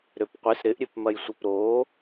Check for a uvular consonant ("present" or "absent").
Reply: present